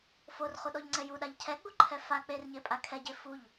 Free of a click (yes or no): no